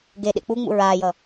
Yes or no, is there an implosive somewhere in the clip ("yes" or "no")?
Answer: yes